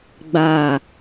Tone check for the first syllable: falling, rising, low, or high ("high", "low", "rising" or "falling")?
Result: falling